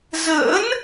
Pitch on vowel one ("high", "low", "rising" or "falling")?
rising